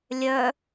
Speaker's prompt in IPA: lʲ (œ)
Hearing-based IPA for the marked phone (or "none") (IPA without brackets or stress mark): œ